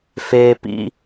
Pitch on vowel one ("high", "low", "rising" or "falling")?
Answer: high